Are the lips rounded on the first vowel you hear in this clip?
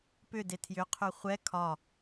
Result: yes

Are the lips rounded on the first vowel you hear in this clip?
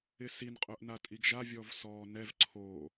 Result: no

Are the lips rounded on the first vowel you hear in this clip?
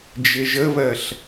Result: no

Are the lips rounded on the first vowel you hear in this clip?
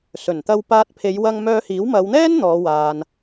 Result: yes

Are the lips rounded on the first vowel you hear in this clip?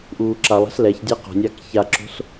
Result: yes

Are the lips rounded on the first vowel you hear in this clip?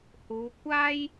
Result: yes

